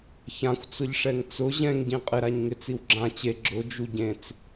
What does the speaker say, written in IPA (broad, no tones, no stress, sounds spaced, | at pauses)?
ç ã xʷ t͡s ʊ ʎ ʂ ɛ ŋ t͡s ʊ ʑ ɛ̃ ŋ ɟ ĩ qʼ ɪ ɾ a ɲ ŋ ɪ t͡s i w ɡ͡ǁ ã t͡ɕ e ɡ͡ǁ ʊ d͡ʒ u ɟ ẽ t͡s